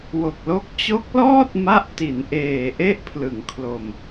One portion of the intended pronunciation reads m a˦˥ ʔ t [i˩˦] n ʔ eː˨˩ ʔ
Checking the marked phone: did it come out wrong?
no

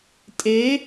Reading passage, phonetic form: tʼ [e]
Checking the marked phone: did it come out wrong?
no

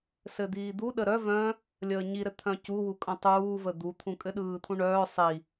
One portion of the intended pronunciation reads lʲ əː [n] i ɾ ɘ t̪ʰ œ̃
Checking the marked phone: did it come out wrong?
yes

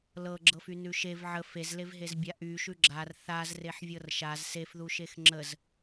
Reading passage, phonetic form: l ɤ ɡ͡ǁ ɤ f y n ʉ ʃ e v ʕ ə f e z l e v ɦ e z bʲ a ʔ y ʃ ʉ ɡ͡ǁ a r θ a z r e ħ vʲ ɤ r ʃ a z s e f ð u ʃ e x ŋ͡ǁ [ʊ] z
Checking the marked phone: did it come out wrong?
yes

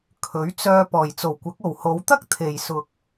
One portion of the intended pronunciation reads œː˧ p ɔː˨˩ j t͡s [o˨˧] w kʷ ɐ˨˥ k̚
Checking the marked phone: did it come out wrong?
yes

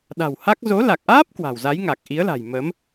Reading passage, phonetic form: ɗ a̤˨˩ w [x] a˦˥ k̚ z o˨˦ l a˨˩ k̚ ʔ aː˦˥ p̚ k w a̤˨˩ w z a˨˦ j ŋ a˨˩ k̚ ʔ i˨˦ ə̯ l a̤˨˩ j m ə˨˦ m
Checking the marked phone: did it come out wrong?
yes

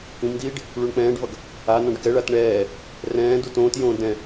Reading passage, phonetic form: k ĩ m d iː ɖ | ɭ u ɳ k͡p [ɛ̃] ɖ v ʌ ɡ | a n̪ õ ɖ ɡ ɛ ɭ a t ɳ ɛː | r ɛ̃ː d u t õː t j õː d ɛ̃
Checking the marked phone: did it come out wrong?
yes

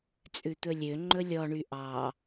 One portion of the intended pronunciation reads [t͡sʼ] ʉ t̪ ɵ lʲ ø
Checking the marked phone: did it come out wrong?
no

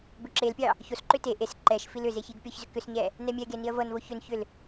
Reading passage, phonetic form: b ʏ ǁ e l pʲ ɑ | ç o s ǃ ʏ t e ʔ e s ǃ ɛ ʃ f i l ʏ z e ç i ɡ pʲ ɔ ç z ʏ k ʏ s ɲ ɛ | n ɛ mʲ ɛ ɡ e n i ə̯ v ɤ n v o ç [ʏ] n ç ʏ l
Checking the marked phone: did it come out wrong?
no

